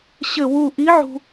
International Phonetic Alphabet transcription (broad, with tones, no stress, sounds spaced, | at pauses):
ɕ ɘ˥˧ w u˥˧ ʔ i˧˥ ʕ ṳ˧